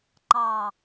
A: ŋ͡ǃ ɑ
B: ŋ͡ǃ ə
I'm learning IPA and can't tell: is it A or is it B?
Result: A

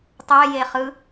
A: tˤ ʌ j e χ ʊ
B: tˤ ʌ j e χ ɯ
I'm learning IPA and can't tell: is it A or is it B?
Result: B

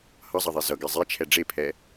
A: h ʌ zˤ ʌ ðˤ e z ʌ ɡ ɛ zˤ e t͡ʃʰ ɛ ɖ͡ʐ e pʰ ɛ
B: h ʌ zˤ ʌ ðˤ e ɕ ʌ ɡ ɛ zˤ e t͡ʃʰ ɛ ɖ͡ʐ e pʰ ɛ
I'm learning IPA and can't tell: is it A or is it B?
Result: A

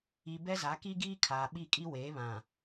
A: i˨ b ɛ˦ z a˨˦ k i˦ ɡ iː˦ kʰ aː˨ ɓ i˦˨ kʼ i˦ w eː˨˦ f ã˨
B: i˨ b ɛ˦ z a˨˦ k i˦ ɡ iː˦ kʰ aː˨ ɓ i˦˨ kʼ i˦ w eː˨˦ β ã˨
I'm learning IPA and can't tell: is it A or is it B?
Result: B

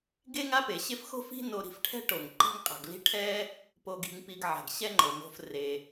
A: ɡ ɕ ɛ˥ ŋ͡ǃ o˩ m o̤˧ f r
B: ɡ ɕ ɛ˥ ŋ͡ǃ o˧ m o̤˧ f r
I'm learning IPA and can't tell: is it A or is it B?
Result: A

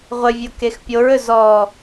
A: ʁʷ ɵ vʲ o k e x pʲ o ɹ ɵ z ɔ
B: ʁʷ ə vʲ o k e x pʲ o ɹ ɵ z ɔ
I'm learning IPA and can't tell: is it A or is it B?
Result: B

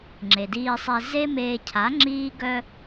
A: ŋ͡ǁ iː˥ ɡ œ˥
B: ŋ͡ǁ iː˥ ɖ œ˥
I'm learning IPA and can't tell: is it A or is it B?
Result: A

